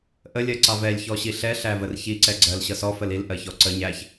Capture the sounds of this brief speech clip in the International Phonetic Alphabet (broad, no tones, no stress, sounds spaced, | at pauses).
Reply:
ʔ ə lʲ ɜ ǀ ɑ v ɛ lʲ ç ɔ ɕ i ɬ ɛ ɬ æ v ə r ç i ǀ ɛ ɡ͡ǀ ɜ l ɕ ʌ s ɔ f ə l i l ʔ ɜ ç ɔ ǀ ə ɲ æ ç